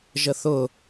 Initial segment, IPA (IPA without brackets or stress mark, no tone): ʒ